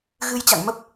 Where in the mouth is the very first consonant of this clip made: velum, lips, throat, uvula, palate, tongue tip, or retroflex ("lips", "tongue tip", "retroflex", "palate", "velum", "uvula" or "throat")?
velum